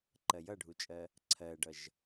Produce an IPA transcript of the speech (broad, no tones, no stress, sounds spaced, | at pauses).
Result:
ǃ ɜ j ʌ ɖʱ u t͡ʃʼ ɜ | ǀʰ ɜ ɖ ʌ ʒ